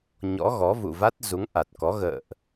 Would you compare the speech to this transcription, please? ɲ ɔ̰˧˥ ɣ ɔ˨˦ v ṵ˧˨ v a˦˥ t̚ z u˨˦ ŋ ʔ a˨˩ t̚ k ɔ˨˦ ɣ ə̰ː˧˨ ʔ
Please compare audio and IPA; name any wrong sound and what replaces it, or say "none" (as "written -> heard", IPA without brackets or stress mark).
none